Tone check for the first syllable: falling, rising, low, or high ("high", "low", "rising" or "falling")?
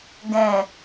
low